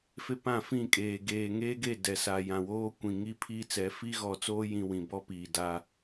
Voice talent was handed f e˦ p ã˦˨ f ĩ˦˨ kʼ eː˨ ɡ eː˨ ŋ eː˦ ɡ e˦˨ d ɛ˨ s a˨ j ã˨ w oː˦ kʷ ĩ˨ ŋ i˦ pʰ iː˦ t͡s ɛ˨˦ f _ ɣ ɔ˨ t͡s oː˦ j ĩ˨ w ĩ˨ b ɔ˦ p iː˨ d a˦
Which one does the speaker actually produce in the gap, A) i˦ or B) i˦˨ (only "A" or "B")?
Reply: A